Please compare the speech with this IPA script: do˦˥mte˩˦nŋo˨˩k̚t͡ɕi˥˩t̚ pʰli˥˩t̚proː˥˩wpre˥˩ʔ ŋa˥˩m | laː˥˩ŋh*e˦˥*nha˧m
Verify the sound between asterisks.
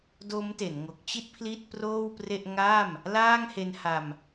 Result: correct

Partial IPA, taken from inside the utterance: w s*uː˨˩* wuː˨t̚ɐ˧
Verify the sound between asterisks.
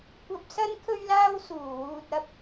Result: correct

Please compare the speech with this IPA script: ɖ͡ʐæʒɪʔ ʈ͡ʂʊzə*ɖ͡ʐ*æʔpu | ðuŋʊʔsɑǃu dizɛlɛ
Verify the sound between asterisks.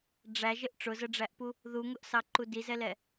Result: correct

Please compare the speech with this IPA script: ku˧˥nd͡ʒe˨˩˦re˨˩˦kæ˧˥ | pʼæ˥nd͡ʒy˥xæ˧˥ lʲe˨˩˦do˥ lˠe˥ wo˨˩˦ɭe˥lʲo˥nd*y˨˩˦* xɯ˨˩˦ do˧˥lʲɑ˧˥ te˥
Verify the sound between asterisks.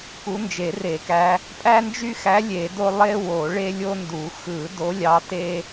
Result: incorrect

